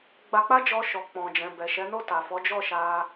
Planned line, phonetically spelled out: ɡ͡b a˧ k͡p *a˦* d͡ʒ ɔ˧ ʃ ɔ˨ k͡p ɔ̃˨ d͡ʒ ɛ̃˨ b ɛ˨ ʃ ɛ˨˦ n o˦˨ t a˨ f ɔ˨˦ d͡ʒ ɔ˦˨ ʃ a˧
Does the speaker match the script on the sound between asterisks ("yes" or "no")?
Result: yes